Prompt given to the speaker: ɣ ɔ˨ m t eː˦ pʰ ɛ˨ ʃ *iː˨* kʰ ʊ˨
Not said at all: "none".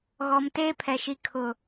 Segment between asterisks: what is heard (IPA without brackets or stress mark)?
i˨